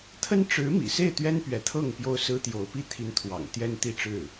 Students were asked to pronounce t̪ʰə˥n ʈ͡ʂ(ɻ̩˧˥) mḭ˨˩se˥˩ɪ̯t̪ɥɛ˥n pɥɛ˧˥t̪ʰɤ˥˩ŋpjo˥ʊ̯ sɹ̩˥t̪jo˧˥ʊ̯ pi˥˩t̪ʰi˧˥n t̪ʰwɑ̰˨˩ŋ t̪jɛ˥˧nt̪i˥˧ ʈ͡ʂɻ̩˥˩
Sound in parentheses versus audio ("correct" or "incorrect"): correct